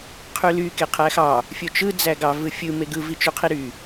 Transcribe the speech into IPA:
qʰ y l y k e qʰ æ x ɑ | fʲ o t͡ʃ ɯ d͡z æ ɡ ɑ v ɯ fʲ ɯ m e ɡ ɯ v i t͡ʃ y qʰ i ɾ y

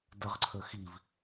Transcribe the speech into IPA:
d ə ʁ ǀʰ ə x i v

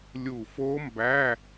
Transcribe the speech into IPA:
lʲ u˧˩ f o˦˥ m b æ˧˥˧

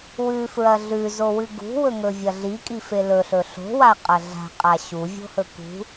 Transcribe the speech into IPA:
w ʉ f ɹ ɐ ɮ ʉ z o w ɨ ɡ ṳ w ɵ ŋ ɵ vʲ ɐ ɮ i kʼ i f e l ɵ ɬ ɵ ɬ o̤ w a qʼ ɐ ɮ a̤ qʼ a ɕ u vʲ o̤ h ɵ k ṳ

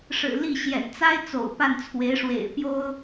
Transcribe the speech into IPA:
ʂ ɻ̩˨˩ l i˥˩ ɕ j ɛ̰˨˩ n t͡s a˥ ɪ̯ t͡s o̰˨˩ ʊ̯ p a˥˩ n t͡sʰ w e˧˥ ɪ̯ ʂ w ḛ˨˩ ɪ̯ p j o˥ ʊ̯

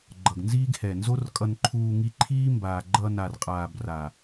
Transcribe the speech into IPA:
ɡ͡ǃ ʌ˨ ɡ n z iː˦ ɡ h ɛ˨ n z o˦ r kʼ ʌ˧ n ǃʰ uː˧ ŋ i˧ ǃʰ iː˦ m b aː˨ ɡ͡ǃ ʌ˧ n a˨ r qʼ aː˨ b r a˨

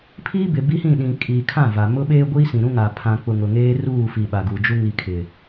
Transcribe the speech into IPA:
pʰ iː˦ b ɪ˨ b i˦ h ĩ˦˨ ɗ ĩ˨ kʼ iː˨ kʰ ã˦˨ v a˨ m ʊ˦ ɓ eː˦ ɡʷ i˦ s ĩ˨ ɾ ũ˦ ŋ a˨ pʰ ã˨ k͡p ʊ˨ ŋ ʊ˨ ŋ eː˦ r uː˦˨ f i˨ ɓ a˨ ɡ u˨ d͡ʒ u˦ ŋ i˨ kʰ ɪ˨

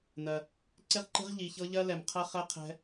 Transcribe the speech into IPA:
n ɜ˨ | ǀ e˦ ʁ ǃ e̤˦ ʁ ʎ i˨ ç ɤ˦ ʎ ɜ˦ l ɛ˨ m qʰ ɜ˦ χ ɛ˦ qʰ ɛ̤˦

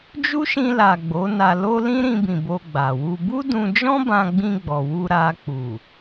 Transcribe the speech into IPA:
d͡ʒ u˦ ʃ ĩ˧ l a˨ ɡ͡b o˨˦ n a˧ l o˦ l ĩ˦ ɾ ĩ˧ b ĩ˨ b o˧ ɡ͡b a˨ w u˧ b u˦ d ũ˧ d͡ʒ ɔ̃˦ b ã˧ ɡ͡b ĩ˧ ɡ͡b ɔ˨ w u˧ ɾ a˧ k͡p u˨

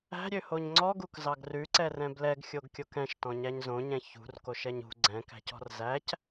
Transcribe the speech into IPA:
æ̤ ɾʲ ø h o ɲ ŋ͡ǀ ɔ ɡ u k z ɑ ɡ r ʉ ǀ ɛ r ɛ̃ b l ɛ ɡ xʲ o ɡ kʲ o k ɛ̃ ʃ t ɔ̃ ɲ æ ɲ z õ ɲ ɛ̃ ç ṳ r k o ʃ ɛ ɲ ṳ ɡ͡ǀ ɛ̃ k æ̤ c ɔ̤ r z æ c

